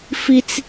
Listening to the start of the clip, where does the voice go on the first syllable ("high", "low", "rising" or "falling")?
high